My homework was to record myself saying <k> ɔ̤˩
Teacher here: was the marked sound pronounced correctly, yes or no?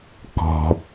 yes